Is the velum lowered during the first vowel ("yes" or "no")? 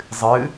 no